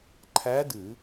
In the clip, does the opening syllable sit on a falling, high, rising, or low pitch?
rising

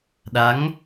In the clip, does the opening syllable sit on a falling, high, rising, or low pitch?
rising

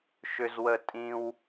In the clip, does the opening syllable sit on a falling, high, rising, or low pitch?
high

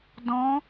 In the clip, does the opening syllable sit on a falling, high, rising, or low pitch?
rising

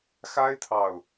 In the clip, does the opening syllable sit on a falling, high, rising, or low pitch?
high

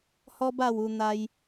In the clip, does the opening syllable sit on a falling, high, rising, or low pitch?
high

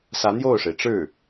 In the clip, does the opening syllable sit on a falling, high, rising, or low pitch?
rising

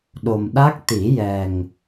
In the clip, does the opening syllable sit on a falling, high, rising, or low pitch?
low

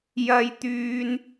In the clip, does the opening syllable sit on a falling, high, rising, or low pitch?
high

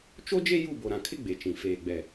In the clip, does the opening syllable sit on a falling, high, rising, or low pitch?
high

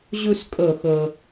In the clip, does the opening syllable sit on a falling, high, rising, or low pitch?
falling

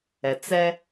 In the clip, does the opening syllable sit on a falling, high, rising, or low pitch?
low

